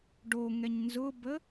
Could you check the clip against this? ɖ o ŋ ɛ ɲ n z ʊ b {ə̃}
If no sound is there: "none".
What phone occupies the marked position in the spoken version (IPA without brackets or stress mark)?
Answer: ə